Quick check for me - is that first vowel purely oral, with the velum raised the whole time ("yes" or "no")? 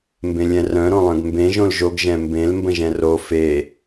no